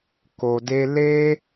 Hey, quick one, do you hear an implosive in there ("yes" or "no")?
no